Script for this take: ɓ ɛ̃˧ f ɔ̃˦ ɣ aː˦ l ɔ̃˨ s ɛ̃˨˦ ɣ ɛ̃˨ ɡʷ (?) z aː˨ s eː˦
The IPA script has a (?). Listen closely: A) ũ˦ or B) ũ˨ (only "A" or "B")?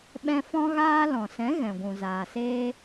B